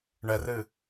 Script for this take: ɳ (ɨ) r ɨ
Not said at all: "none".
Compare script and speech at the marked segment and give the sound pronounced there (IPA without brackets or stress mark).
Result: ɛ